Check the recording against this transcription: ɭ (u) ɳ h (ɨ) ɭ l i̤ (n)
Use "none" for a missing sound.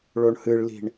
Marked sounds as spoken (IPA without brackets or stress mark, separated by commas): o, ɨ, ɳ